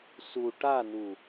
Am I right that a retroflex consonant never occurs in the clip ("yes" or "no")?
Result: no